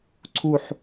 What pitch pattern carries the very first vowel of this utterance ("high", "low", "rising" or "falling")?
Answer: falling